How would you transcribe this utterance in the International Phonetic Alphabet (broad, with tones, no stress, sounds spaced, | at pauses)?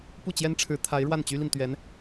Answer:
p u˥˩ t͡ɕ j ɛ˥ n ʈ͡ʂʰ ɻ̩˧˥ t̪ʰ a˧˥ ɪ̯ ɻ w a˥˩ n t͡ɕ y˥ l i˨ n t̪ ɥ ɛ˧˥ n